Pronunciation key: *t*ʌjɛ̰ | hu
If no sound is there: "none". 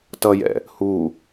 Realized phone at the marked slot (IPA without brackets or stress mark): t